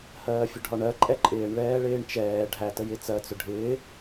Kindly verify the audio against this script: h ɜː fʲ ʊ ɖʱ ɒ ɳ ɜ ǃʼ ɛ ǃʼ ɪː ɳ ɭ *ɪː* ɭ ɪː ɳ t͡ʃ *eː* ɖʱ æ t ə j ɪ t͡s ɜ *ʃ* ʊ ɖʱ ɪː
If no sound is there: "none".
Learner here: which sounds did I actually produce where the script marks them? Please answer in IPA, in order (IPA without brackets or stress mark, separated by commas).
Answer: ɛː, ɛː, t͡s